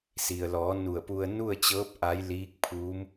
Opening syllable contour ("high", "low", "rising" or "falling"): low